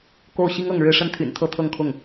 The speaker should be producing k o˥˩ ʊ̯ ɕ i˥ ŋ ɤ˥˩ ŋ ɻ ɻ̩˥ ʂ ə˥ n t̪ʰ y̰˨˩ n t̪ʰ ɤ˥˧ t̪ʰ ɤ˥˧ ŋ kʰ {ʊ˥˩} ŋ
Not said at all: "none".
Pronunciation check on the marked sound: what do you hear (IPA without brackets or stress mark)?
ʊ˥˩